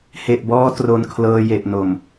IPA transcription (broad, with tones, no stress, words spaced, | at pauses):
he˨˩ʔbɔː˧ tro˧nkʰlɤː˧je˨˩ʔno˨˩m